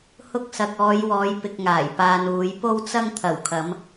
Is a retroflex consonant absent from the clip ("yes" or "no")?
yes